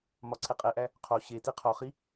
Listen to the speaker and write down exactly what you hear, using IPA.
mɒǀʰeqʼeʔæ | qʰo ɕe tiqʰoχi

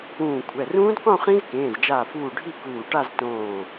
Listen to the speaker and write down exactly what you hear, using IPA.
ũː˧˩ kʷʰɛ˩˧˩rũː˦˥dqũ˥˧ χĩ˦˥zkẽː˩˧˩zd͡ʒaː˧˩fuː˧˩ ɖʱi˥˧kuː˧˩ʈa˥˧z tõː˧˩

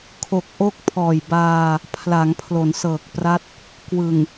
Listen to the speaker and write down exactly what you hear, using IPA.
kʰo˨˩k̚ʔo˥˩k̚ pʰɔː˨˩jbaː˧ | pʰla˩˦ŋ pʰlo˩˦nsɤː˨˩k̚pra˦˥t̚ | kwɯ˨˩ŋ

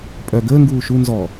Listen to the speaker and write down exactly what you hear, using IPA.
pʼœ ɡəːŋɡuː ʃu nzɔ

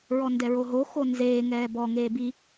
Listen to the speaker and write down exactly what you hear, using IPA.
ɹɔndɛɹoɦo xonzeː ŋɛːbɔ ŋeːbi

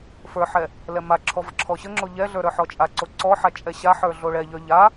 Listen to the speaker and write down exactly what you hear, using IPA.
fə˞ħɛ | lɛmaǁʰɔ vəǁʰɔɕəŋ͡ǁo ʎɛɮə˞ ɾə˞ħɔt͡ʃʼaǀo ǀɔħa t͡ʃʼɛɕaħə˞ ɮoɭɛʎə˞ ʎa

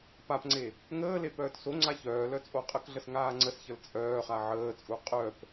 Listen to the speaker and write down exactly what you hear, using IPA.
papŋ͡ǀe | ŋəːle pœːtsoŋ͡ǀa çœː lœt͡sʼoqʼəkɮəs ŋaːŋ͡ǀəsçəl t͡sʼœːχa ʕəːt͡sʼu qʼœp

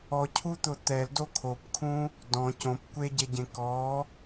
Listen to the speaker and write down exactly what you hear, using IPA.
ɔcʰut̪ʊ t̪ɛldo kʰopkʰũ | dɔ̃ cõp kʷeɟeɟẽ kɔ

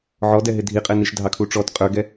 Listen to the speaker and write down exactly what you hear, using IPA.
ʕɔdɛɦɪ dʱiqʼɛniʃ dʱɑkʰuʈ͡ʂɔt qʼə˞ɡɛ

